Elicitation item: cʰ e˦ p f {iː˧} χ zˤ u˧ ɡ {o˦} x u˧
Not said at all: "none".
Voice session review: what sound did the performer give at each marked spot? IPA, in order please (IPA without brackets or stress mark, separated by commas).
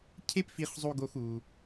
i˧, o˦